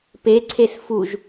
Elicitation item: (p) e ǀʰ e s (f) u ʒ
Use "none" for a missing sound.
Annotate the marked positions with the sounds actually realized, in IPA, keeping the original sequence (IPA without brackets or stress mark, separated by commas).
p, f